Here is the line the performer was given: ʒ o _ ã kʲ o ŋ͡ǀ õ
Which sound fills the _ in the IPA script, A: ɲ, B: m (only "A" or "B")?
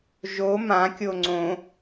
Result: B